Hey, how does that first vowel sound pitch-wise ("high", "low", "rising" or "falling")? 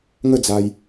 falling